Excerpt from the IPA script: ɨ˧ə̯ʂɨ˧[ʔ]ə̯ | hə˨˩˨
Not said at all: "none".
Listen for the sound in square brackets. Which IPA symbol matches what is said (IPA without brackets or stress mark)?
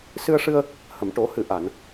none